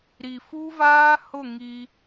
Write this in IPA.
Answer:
ɾ i˨ f u˦ v aː˦ h ʊ˦˨ ŋ i˦

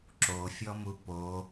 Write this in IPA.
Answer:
ǁ o fʲ ɔ m u p o

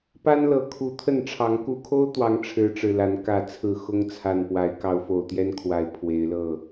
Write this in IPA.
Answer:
p a˦ n l ɤ˨˦ kʰ u˨˦ t̪ʰ ə˥˨ n ʈ͡ʂʰ ɑ˨˦ ŋ k u˨˩ kʰ o˦ ʊ̯ t̪ w ɑ˨˦ ŋ ʈ͡ʂʰ ɻ̩˨˦ ʈ͡ʂ ɻ̩˨˩ l a˨˦ n k ä˥˨ t͡sʰ ɹ̩˥˨ x ʊ˦ ŋ t͡sʰ a˨˩ n p w a˨˦ ɪ̯ k ɑ˨˦ ʊ̯ f o˨˩ ʊ̯ t̪ j ɛ˦ n kʰ w a˨˩ ɪ̯ pʰ w e˨˦ ɪ̯ l ɤ˥˨

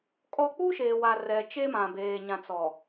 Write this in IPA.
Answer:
kʼ ɔ˦ k͡p u˦ ʃ eː˨ w a˨ r ɛ˨ t͡ʃ e˦ m ã˨ b eː˨ ɲ ã˨ t͡s ɔ˨

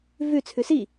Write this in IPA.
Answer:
v ʉ t͡sʰ ʉ s i

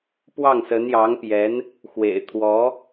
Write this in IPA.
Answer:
p w ɑ˥˩ ŋ s ə˧˥ n j ɑ˧˥ ŋ p j ɛ˧˥ n | x w ḛ˨˩ ɪ̯ t̪ʰ w ɔ˧˥

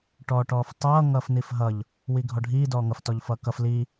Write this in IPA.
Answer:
ʈ ɔː ʈ ɔː f tˤ ʌː ŋ ʌː f n i f ɦ ʌ ʎ | w i ɡʱ ɔ ɖʱ iː d ɔː ŋ ʌ f t ɔ ʎ f ʌː k ʌ f l i

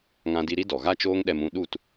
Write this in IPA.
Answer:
ŋ ã˧ d i˧ ɾ i˦ d ɔ˨ ɣ a˦ t͡ʃ oː˦ ŋ ɗ ɛ˧ m ũ˧ ɗ u˦˨ t

